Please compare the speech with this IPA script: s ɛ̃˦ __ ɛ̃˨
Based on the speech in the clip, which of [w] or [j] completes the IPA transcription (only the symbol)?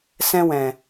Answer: w